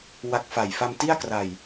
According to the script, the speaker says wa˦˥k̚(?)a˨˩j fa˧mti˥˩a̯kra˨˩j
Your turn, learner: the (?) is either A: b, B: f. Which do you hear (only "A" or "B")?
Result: B